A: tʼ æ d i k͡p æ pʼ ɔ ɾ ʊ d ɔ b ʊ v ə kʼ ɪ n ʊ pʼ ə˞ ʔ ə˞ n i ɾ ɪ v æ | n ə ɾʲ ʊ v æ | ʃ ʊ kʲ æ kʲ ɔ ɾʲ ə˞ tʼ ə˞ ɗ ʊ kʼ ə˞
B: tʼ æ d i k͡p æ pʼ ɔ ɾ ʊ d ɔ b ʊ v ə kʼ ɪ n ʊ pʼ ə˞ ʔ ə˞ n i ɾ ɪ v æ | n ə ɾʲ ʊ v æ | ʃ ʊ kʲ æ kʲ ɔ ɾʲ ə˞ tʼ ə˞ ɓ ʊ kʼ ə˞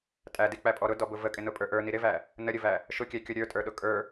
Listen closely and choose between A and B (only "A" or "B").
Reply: A